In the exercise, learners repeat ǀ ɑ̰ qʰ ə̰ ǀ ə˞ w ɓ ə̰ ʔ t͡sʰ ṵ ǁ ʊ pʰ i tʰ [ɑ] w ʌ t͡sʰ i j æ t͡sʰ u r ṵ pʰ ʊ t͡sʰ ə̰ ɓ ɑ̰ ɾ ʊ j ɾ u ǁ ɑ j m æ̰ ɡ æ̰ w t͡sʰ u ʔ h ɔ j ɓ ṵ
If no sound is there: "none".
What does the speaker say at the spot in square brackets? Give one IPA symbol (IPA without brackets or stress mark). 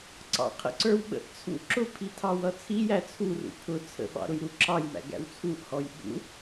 ɑ